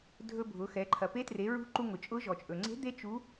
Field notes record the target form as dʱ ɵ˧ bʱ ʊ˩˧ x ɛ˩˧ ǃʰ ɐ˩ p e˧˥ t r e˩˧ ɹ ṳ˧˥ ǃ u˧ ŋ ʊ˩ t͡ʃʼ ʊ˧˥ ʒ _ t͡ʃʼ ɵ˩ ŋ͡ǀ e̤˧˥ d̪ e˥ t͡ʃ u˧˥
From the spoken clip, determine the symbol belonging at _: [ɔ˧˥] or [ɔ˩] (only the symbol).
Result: ɔ˩